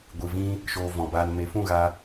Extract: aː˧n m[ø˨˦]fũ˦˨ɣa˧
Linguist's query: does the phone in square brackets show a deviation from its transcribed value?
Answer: yes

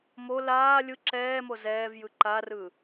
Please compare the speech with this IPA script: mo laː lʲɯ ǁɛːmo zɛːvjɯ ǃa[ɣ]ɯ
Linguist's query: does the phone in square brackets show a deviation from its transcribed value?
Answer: yes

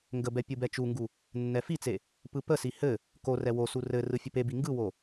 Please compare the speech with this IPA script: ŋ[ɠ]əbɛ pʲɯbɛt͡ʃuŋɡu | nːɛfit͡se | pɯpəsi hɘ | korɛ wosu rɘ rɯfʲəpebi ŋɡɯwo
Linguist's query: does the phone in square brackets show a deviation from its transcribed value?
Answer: yes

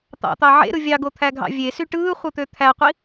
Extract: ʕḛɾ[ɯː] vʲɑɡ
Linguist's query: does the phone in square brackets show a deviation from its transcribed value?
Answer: yes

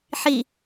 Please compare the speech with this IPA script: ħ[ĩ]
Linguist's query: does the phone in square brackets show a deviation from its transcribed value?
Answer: yes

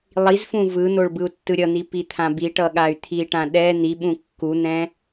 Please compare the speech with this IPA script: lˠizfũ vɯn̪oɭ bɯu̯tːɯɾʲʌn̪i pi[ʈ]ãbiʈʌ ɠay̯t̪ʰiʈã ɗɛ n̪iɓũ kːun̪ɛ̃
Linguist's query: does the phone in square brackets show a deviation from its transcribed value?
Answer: yes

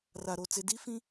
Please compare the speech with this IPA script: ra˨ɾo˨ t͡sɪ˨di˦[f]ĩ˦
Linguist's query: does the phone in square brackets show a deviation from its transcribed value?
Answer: no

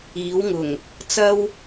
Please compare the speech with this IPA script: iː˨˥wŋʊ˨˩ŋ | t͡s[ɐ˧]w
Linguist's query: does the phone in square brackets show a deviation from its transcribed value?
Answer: yes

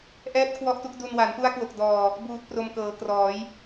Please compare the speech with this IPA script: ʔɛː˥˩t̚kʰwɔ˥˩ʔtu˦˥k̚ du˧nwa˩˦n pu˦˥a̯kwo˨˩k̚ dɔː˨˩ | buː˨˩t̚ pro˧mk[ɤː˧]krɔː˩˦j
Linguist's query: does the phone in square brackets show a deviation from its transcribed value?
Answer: yes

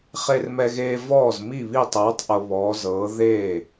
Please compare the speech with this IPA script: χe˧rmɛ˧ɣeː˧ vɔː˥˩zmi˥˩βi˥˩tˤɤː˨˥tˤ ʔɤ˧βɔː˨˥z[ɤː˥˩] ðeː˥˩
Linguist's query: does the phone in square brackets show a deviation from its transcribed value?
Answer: yes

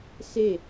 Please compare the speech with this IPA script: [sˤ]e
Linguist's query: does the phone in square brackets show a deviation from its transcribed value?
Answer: yes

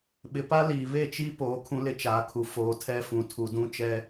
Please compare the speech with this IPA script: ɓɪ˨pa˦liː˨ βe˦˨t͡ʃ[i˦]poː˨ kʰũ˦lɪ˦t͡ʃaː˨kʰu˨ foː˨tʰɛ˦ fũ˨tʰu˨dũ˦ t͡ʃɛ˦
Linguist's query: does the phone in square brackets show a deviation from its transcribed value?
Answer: no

